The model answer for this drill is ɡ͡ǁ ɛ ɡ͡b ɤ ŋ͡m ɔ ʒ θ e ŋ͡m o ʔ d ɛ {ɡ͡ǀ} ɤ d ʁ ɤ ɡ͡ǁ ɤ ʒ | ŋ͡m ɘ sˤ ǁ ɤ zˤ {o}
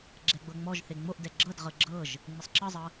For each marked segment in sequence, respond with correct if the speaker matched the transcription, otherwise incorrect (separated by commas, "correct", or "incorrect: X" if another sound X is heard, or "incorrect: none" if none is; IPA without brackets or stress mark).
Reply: incorrect: ɡ͡ǁ, incorrect: ɤ